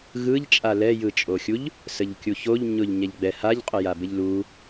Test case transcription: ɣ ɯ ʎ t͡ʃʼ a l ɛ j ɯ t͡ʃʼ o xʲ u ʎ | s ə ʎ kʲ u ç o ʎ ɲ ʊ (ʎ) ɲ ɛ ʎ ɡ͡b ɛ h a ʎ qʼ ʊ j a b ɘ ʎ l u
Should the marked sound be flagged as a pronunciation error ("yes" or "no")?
no